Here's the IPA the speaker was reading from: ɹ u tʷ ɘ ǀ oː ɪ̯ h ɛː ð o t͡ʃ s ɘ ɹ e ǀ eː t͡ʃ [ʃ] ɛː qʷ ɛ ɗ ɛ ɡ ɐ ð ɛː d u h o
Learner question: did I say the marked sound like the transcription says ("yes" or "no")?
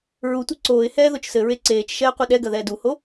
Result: yes